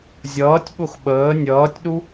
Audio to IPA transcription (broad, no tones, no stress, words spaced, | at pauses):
zʲʌːtʲɓʊx ɓəː nʲʌːtʲɗu